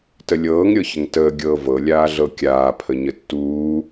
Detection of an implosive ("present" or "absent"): absent